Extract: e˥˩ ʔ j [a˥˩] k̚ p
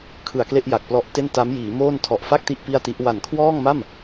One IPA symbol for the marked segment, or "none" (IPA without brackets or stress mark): a˨˩